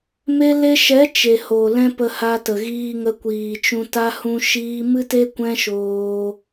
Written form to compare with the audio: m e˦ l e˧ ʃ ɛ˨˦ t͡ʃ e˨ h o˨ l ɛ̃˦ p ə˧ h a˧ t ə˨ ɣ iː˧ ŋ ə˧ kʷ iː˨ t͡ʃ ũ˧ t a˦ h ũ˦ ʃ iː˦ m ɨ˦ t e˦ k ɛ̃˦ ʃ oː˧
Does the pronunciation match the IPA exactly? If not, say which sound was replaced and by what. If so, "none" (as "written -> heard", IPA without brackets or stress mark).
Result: k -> kʷ